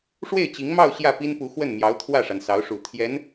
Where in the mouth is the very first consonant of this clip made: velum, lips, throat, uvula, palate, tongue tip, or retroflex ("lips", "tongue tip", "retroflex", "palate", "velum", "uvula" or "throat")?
retroflex